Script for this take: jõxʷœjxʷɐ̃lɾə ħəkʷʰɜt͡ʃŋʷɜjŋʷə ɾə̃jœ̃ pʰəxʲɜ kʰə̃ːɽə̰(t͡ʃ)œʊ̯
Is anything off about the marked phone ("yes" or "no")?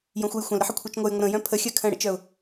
no